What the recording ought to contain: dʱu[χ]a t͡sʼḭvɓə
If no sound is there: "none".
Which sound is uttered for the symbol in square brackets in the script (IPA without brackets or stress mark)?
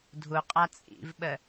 qʼ